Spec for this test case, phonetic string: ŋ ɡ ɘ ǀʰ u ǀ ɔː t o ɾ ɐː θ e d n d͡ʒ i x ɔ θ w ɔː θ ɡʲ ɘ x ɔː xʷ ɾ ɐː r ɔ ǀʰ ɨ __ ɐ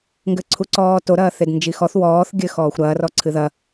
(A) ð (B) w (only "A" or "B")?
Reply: A